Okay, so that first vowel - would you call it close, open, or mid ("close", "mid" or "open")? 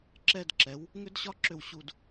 mid